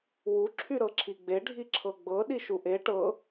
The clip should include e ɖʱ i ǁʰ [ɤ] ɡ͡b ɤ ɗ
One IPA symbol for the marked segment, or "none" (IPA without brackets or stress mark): ɤ